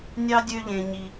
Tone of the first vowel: high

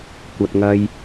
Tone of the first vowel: low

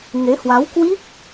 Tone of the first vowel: rising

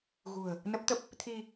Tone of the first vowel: low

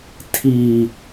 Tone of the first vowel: low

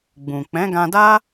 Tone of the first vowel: low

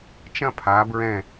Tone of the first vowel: falling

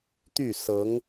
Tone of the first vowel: falling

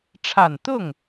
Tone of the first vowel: low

